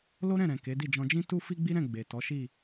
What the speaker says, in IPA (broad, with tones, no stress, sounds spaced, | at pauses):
l o˦ ɾ ɛ̃˦˨ ɾ ɛ̃˨ k e˨˦ d i˦˨ d͡ʒ ɔ̃˧ d͡ʒ ĩ˦ t u˦ f i˦ ɡ͡b i˦ ɾ ɛ̃˦˨ ɡ͡b e˨ t ɔ˨˦ ʃ i˦˨